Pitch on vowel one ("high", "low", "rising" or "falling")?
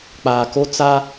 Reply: low